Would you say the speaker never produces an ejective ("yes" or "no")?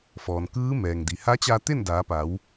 yes